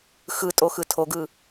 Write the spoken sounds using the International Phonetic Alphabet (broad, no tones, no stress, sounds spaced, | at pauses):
x ɯ tʼ o x ɯ tʰ o ɡ ɯ